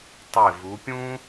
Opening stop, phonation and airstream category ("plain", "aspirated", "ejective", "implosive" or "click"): plain